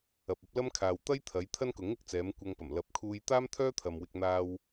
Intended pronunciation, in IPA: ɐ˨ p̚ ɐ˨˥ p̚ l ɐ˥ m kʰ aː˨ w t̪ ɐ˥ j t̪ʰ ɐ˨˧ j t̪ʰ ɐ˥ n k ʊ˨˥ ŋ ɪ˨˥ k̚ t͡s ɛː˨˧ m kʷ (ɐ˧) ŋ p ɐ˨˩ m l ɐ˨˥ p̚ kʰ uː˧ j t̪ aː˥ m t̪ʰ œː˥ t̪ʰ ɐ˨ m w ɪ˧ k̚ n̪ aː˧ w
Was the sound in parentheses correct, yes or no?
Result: yes